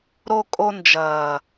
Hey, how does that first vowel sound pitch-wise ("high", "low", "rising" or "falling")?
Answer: high